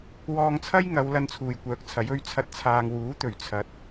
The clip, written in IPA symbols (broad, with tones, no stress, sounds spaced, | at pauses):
w ɔː˧ ŋ t͡sʰ ɐ˥ j ŋ ɐ˨˧ w l ɐ˧ n t͡sʰ uː˨ j kʷ œː˨˥ k̚ t͡sʰ ɐ˨˥ j ɵ˧ ɥ t͡sʰ ɐ˧ t̚ t͡sʰ aː˨ ŋ w uː˨˥ t̪ ɵ˨˩ ɥ t͡sʰ ɐ˨˥ t̚